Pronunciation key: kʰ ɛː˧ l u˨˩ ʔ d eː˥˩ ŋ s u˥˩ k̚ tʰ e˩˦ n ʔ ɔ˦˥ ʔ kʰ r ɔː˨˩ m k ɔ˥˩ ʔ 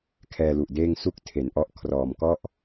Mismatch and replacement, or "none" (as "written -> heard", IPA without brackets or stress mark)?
none